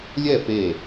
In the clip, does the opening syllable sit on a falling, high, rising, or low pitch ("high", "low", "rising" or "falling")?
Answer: falling